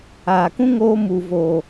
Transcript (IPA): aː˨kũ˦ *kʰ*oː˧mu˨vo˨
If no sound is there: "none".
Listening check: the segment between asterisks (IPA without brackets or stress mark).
ŋ